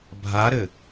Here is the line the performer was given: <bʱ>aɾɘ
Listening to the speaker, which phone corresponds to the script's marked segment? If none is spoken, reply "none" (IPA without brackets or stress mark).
bʱ